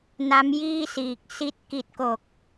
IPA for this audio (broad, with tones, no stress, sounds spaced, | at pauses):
n a˦˥ m j iː˥˩ s iː˨˩ k̚ s i˦˥ t̚ k i˨˩ t̚ k o˨˩ k̚